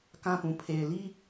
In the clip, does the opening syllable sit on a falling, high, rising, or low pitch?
high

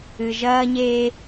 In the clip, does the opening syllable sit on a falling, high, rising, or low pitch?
low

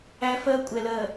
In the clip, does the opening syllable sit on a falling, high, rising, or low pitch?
high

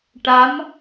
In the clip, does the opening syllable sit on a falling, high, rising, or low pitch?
rising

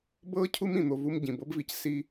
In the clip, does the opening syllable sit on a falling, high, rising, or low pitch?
high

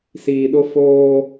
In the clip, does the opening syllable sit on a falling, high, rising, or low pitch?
low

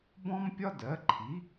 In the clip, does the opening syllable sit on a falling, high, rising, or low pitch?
high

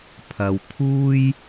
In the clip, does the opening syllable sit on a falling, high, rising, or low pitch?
low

